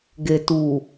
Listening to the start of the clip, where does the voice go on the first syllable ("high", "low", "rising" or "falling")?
low